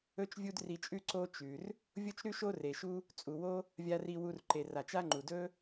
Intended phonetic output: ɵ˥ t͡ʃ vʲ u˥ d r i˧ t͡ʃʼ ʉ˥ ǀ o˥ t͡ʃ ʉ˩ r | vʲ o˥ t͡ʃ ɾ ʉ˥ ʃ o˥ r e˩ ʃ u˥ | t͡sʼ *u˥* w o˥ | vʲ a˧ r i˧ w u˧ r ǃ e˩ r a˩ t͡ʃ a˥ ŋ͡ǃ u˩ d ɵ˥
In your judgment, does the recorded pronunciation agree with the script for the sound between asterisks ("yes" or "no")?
no